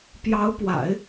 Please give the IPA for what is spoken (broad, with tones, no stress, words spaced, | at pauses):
pjɑ˧˥ʊ̯pwa̰˨˩˦ɪ̯